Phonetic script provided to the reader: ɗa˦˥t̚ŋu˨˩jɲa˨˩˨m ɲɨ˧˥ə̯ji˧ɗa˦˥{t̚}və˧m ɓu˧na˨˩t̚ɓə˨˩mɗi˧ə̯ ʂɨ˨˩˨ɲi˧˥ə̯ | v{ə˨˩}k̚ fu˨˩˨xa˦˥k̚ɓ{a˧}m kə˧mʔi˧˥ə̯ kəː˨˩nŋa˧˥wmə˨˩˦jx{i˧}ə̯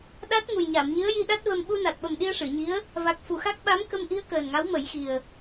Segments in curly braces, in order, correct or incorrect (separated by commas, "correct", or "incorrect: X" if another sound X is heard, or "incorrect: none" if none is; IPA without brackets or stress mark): correct, incorrect: a˨˩, incorrect: a˧˥, incorrect: i˨˩